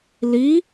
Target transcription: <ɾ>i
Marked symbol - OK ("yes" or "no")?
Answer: no